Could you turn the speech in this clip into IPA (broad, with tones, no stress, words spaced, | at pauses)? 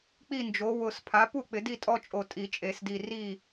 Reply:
k͡pi˥˨nd͡ʒo˨˥ wʊ˧˩spʰa˨˥pu˥˨ k͡pɪ˨˥di˥˨tʼɔ˥˨t͡ʃʼo˧˩ tʼi˨˩˦t͡ʃʼe˨˩˦sdi˧˩ri˥˨